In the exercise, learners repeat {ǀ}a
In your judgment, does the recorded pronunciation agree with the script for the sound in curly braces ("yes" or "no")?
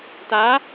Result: no